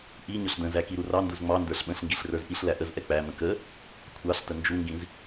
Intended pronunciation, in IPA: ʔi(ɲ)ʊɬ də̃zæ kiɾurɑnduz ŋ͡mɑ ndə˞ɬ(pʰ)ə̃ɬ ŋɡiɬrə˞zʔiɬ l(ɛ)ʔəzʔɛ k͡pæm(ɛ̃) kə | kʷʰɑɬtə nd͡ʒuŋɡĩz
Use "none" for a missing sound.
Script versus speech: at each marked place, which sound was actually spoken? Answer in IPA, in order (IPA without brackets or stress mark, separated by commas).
ɲ, ɓ, æ, ə̃